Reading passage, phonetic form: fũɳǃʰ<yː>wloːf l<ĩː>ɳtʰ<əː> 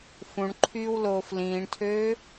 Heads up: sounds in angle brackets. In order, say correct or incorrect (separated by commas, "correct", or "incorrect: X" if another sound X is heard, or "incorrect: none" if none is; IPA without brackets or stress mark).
correct, correct, incorrect: øː